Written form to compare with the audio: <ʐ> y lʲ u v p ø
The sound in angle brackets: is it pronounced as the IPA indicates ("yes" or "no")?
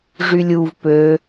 yes